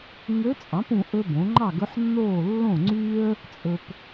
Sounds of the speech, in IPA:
ŋø˧˥t͡sʼɑ̃˩˥pũ˨ ʔɵ˥bõ˩˥ ŋ͡ǃɑ˥˨ɡɵ˧˥ħnːoː˥˨ lːõ˥˨ŋ͡ǀyː˥ə̯ | t͡sʼɵ˨p

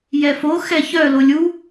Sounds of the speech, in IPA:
jɛfo xɛçœ lolʲu

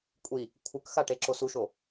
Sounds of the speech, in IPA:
kʷʼi | kʷʰɯkxa ʈeǁosuʃo

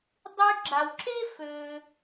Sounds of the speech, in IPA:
dˤy˧ ɡ͡ǁa˩w ǁe˥ fø˩

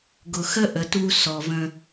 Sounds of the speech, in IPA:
ɡʊ˨xə˦ ʔə˨tu˦ sɔ˨və̃˦

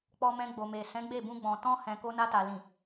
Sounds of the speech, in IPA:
k͡pɔ˧mɛ̃˧ɡ͡bo˨me˨ sɛ̃˨˦ɡ͡be˦˨bũ˧ɡ͡bɔ̃˨ tɔ̃˧hɛ̃˨ ko˧na˧ta˨ lĩ˨

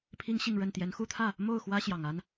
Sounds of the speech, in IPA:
pʰi˦ŋɕi˥˨ŋɻə˥˨n t̪jɛ˨˦nxu˦t̪ʰä˥˨ | mo˥˨ʊ̯xwä˦ ɕjɑ˨˩ŋa˦n

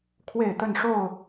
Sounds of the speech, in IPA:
kʰwe˥˨ɪ̯t̪ə˥˨nʂo˥˨ʊ̯

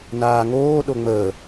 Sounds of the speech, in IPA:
naːŋoː ɗoŋ͡məː

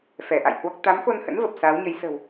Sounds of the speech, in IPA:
fɛ˧˩ʔa̰˧˨jhwɔ˦˥k̚ t̪a˨˦mxo˧nhə̰˧˥n və˨˩p̚saː˨˦wɲə˨˦j sə̤˨˩w

